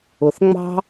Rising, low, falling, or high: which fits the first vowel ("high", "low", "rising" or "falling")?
low